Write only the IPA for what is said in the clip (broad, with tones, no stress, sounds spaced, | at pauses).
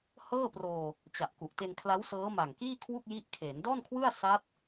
h ɤː˥˩ p r oː˧ | t͡ɕ a˨˩ ʔ k u˨˩ ʔ t e˧ n kʰ l a˦˥ w s ɤː˦˥ m a˨˩ ŋ k iː˥˩ kʰ w u˥˩ k̚ j i˦˥ ʔ kʰ eː˩˦ n d ɔː˥˩ n kʰ w ɯ˥˩ a̯ s a˦˥ t̚